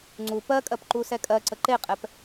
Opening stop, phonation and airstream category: click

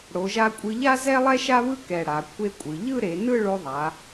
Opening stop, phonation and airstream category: ejective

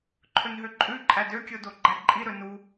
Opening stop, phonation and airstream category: click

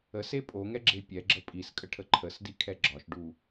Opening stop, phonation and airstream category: ejective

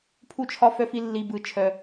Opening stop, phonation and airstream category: aspirated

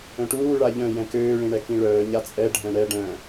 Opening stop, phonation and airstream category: plain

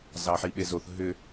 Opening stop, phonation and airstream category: implosive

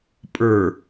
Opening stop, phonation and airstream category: ejective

